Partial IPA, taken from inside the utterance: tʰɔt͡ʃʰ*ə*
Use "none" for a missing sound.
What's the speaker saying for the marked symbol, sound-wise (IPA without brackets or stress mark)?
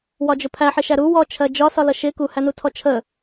ə